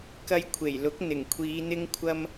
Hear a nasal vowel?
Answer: no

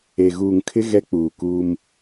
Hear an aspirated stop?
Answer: yes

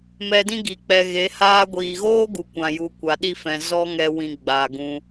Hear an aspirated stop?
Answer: no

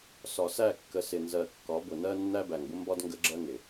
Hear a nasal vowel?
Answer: no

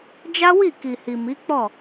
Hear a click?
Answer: no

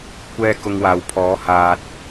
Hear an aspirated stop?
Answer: yes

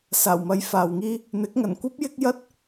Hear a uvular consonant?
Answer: no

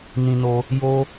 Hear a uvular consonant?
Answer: no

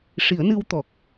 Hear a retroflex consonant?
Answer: yes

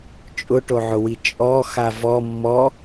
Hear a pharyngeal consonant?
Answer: yes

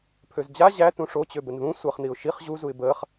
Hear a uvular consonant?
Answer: yes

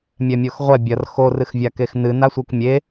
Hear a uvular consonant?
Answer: yes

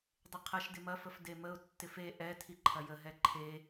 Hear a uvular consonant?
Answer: yes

